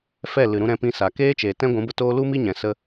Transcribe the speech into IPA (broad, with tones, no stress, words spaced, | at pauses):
fɛ˦˨ lɨ˨ɾũ˧ ɾɛ̃˧pĩ˧sa˨ keː˦t͡ʃeː˨ tɛ̃˦ ɡʷũ˨˦bə˧toː˦ lu˦mi˦ɲɛ̃˨sə˧